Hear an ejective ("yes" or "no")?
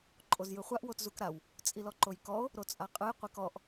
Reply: yes